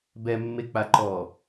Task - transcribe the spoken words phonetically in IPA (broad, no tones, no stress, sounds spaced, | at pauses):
b ɛ mː e k͡p a ǃ ɔː